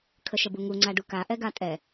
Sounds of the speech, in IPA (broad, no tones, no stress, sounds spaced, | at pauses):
kʰ ə ʃ ə b u ŋ u ŋ͡ǀ a ɖ u k a ʔ ɛ ɡ a tʼ ɛ